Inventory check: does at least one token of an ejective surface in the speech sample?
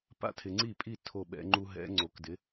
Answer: yes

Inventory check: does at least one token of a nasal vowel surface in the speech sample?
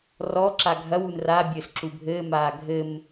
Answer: no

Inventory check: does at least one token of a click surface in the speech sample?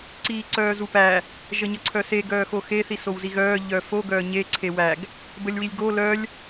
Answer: yes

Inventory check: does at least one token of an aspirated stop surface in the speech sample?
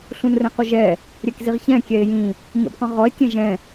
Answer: no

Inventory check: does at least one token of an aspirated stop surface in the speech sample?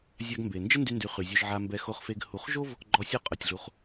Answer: no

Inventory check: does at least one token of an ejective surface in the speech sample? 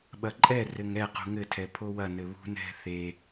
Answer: yes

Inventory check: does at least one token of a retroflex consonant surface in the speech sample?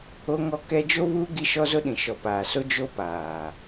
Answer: no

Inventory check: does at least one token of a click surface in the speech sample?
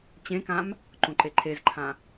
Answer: yes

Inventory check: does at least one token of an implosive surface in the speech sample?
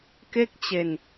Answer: no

